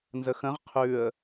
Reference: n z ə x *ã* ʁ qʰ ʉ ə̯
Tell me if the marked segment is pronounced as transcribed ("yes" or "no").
no